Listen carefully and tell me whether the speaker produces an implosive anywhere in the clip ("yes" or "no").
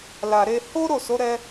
no